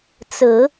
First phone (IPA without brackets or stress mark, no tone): t͡s